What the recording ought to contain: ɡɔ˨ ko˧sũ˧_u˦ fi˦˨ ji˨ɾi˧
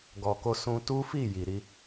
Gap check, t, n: t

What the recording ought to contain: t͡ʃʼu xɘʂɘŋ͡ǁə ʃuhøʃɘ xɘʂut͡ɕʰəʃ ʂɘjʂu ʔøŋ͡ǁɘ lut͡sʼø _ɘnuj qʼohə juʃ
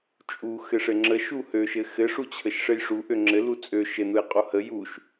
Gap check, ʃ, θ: ʃ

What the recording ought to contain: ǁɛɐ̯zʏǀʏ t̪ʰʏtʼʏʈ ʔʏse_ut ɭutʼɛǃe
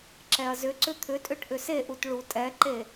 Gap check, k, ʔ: ʔ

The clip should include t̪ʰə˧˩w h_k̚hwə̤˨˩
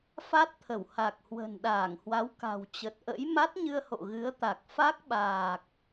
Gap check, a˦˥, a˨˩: a˨˩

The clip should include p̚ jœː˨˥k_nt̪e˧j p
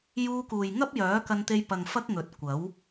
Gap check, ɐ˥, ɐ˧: ɐ˧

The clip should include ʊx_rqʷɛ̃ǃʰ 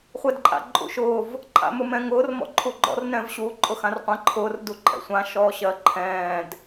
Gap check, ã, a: ã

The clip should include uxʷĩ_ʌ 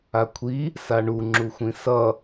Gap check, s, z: s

